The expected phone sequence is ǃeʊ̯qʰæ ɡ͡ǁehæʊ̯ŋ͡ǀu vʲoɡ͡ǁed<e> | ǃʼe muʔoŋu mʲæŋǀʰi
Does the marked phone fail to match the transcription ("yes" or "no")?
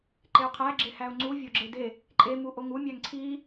no